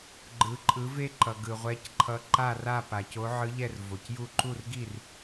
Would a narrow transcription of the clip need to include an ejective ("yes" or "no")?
yes